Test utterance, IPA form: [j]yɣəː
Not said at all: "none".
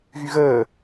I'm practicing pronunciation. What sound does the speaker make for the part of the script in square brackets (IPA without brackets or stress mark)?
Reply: ɣ